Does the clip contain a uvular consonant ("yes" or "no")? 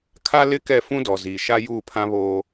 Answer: no